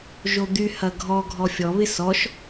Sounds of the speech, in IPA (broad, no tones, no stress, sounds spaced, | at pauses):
ʒ o d̪ y h ɐ ɡʱ ɔ ɡʱ ɔ fʲ ɔ β ɪ s ɔ ʃ